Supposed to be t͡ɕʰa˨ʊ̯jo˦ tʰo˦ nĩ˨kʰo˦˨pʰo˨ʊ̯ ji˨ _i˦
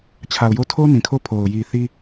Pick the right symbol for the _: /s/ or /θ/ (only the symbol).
θ